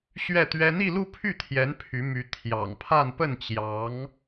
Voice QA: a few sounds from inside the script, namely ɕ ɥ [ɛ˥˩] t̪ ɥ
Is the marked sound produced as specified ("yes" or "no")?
yes